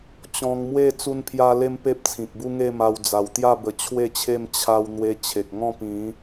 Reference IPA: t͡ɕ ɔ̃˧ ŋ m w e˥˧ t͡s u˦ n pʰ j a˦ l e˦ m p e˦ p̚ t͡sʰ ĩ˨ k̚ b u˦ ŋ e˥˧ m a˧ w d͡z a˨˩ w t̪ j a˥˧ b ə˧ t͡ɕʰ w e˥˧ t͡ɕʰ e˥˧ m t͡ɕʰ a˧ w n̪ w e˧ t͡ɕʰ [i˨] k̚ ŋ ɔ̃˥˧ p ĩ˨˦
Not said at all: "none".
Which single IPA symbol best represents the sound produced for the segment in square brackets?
e˨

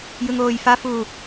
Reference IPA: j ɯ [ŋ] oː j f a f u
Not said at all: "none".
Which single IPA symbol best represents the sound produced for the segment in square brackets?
ŋ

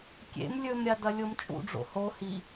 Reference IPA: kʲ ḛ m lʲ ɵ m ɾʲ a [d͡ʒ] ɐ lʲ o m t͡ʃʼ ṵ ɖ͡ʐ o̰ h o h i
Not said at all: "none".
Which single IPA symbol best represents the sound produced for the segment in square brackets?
d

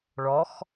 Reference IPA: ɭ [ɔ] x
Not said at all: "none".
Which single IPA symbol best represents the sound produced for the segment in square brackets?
ɔ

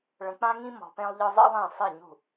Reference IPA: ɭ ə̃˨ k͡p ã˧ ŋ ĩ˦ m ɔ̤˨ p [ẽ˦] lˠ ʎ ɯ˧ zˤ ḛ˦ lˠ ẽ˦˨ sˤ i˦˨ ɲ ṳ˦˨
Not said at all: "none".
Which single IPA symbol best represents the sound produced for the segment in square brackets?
ẽ˧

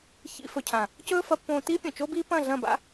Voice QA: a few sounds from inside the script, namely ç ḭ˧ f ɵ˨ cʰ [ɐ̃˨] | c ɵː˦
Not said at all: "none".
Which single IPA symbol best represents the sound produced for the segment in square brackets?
ã˨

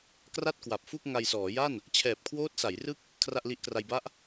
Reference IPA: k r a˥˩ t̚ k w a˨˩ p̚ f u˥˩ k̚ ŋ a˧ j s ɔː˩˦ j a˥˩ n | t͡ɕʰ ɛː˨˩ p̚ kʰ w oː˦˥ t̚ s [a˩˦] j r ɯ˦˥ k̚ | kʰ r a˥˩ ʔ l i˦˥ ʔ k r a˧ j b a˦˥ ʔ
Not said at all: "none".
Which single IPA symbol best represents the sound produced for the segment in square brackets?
a˩˦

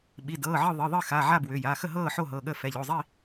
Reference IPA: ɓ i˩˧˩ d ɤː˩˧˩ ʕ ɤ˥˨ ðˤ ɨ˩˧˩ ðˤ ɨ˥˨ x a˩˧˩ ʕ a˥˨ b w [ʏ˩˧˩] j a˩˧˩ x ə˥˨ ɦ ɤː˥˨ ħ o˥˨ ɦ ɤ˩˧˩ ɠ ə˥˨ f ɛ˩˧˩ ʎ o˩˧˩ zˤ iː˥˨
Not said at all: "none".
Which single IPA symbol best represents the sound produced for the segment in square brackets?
ʏ˩˧˩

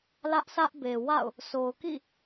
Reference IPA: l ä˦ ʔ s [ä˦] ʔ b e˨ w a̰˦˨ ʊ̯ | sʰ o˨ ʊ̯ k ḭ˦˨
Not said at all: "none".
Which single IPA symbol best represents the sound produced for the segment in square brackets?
ä˦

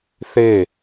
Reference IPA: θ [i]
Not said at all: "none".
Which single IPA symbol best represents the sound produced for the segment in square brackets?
e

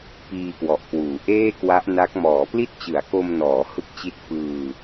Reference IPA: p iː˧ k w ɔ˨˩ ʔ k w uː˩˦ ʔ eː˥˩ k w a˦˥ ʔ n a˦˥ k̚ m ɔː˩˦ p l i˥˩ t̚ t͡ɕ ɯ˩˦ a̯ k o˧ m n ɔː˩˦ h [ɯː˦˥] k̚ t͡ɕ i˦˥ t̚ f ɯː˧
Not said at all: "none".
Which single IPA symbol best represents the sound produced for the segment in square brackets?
ɯ˦˥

